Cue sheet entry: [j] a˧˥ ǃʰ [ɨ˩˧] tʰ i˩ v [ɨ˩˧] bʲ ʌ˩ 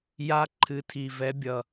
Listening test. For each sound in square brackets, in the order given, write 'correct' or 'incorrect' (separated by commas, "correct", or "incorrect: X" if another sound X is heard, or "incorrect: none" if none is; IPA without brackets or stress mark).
correct, correct, incorrect: ɛ˩˧